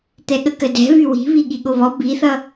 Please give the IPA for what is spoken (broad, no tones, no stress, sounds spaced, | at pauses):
t̪ ɛ ɠ ə k ə d ɛ̤ β y w i̤ β i ɠ i ɠ o β ɔ b i θ ʌ